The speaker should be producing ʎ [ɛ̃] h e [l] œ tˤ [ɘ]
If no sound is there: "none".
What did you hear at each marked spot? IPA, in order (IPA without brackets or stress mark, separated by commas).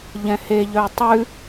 ɛ̃, ʎ, ʉ